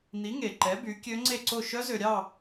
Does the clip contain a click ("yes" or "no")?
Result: yes